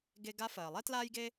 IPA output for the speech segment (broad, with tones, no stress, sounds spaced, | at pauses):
ɡ e˧ ɡ a˧˥ f ɜː˩ lˠ ɛ˥ t l aː˥ j ɡ e˥